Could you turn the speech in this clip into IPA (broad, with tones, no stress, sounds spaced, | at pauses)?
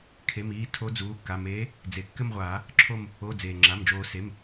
kʰ e˩˧˩ m iː˩˧˩ tʰ o˨˦ d͡z uː˩˧˩ kː a˩˧˩ m eː˨˦ | d͡z e˩ kː ɘ˦˨ m ʁʷ aː˨˩˦ | ǁʰ o˦˨ m | o˩˧˩ d͡z eː˩ ŋ͡ǁ a˩˧˩ m d͡ʒ oː˨˩˦ s e˩˧˩ m